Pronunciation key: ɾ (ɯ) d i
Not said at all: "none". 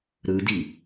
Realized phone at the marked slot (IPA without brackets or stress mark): ɯ